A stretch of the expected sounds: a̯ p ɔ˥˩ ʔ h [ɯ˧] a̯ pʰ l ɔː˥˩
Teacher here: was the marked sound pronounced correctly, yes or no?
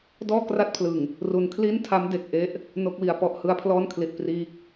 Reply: no